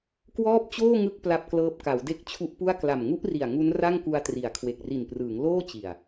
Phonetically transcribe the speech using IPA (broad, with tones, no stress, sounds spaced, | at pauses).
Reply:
k w ɔː˥˩ p̚ t͡ɕ oː˥˩ ŋ ɯ˦˥ k̚ p l a˦˥ p̚ k l ɤː˦˥ p̚ k a˩˦ w d e˦˥ k̚ t͡ɕʰ u˦˥ ʔ p u˥˩ a̯ k l a˨˩ m ŋ u˦˥ ʔ r i˨˩ a̯ ŋ u˦˥ n r a˥˩ ŋ k u˧ a̯ t r i˩˦ a̯ kʰ w e˨˩ k̚ r i˨˩ n p r ɯː˩˦ ŋ l oː˥˩ t͡ɕ i˨˩ a̯